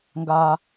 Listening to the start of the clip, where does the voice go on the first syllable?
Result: high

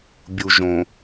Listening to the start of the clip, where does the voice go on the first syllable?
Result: low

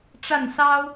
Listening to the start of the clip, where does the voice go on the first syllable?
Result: falling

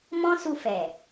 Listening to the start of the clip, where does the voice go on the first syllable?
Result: high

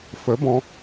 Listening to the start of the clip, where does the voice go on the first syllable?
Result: rising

